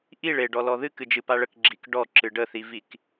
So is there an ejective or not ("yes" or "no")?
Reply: no